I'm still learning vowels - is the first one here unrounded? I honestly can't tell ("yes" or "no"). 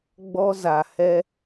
no